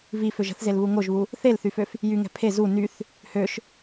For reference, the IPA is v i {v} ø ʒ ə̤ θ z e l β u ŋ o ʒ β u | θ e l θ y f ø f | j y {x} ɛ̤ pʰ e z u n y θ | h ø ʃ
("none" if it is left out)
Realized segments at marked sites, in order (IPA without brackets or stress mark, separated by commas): f, ŋ